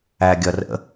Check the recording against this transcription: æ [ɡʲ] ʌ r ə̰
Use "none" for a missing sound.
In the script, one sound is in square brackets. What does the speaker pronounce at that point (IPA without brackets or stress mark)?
ɡʲ